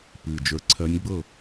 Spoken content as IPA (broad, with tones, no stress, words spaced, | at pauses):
pɨ˨˩ d͡ʒə˞˧ǀʰɜ˧˥nʲɡ͡bɤ˥˩